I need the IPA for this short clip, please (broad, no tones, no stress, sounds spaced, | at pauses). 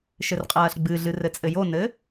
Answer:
ʃ ɘ r qʼ ɐː ɬ ɡ͡b ɨ ɮ ɨ r ɘ t͡sʼ ɘ j o n ɘː